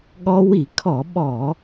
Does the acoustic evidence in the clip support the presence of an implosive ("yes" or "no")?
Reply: yes